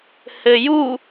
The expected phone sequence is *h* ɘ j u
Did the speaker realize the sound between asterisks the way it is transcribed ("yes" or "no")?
yes